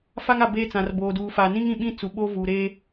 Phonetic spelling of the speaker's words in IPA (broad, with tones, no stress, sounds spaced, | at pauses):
f a˦ ŋ a˨ b eː˦ t͡s ã˨ r b oː˨ d uː˨ f aː˨ n ĩ˦ ŋ ĩ˨ ɓ ĩ˦ t͡s u˨ ɓ oː˦ v uː˨ ɾ eː˦